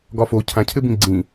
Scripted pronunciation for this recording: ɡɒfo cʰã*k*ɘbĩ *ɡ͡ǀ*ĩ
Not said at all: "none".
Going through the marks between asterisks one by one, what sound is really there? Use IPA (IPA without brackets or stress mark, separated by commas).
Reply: cʰ, ɡ͡ǀ